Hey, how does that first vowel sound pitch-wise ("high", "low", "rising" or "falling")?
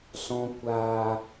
low